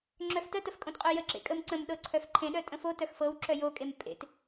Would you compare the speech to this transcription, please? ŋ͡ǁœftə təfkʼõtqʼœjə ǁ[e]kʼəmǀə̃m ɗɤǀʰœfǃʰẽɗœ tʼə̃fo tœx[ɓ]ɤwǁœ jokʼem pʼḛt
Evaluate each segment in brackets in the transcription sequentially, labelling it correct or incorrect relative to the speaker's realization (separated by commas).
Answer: incorrect, incorrect